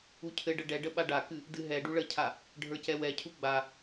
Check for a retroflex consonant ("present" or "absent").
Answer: present